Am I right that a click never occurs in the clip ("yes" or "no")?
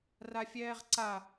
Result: no